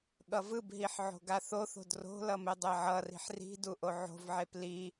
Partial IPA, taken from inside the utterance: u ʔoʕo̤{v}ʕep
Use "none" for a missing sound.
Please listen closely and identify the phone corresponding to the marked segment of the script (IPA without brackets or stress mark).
v